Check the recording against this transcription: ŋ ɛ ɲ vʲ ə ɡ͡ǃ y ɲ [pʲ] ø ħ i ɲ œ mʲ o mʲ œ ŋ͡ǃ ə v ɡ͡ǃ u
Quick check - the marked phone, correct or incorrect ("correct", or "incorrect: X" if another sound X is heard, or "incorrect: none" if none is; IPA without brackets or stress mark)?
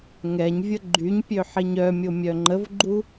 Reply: correct